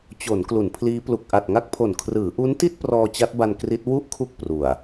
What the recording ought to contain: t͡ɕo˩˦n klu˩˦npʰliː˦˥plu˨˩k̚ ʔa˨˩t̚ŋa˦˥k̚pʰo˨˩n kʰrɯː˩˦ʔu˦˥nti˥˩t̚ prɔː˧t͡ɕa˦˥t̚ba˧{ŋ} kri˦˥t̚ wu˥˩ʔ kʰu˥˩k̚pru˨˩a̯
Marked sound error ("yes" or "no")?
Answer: yes